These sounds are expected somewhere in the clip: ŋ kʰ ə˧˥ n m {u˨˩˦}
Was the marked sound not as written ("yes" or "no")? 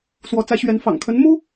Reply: yes